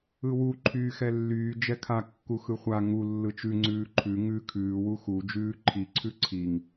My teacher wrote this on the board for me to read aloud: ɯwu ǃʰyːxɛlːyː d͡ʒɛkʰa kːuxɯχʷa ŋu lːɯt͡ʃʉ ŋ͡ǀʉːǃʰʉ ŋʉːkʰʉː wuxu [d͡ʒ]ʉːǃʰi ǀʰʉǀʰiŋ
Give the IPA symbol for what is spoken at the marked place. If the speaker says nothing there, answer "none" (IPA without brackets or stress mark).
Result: d͡ʒ